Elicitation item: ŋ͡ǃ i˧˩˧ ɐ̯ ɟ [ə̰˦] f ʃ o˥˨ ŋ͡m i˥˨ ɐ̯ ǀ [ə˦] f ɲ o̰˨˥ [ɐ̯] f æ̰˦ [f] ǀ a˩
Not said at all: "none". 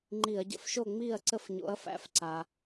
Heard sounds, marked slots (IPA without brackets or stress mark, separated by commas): ə̰˦, ə˦, ɐ̯, f